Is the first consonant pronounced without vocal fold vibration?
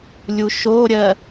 no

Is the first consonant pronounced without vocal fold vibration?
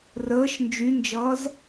no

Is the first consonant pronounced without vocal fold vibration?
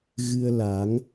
no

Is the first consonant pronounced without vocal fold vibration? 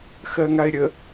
yes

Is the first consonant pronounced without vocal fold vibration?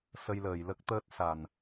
yes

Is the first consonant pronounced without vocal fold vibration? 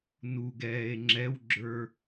no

